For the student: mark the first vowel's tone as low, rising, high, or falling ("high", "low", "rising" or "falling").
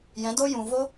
rising